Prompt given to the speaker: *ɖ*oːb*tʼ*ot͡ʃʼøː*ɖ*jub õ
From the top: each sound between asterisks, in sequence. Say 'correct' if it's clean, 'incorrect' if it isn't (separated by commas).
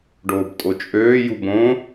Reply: correct, correct, incorrect